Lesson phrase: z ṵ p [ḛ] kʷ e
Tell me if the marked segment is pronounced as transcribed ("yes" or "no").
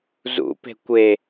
no